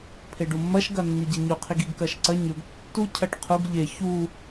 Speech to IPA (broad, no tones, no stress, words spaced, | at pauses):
pʰeɖumːɐʃ ɡɐnːiɟeɲu qʰiɡiɡkɐʃǀɐ ɲɵɡ tːu cʰɐʈqʰuɡ ʎe çu